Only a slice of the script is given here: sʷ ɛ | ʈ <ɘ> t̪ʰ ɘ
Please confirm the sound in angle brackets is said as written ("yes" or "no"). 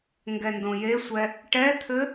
no